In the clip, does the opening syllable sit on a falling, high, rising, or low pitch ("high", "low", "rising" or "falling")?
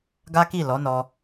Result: high